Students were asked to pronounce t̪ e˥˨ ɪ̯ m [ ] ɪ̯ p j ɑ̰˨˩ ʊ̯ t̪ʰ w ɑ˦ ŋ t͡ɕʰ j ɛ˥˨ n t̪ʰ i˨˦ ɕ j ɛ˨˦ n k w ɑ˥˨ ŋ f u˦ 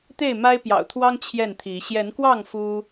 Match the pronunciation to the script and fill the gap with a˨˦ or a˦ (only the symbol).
a˦